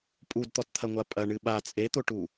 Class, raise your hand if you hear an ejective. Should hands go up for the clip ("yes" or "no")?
yes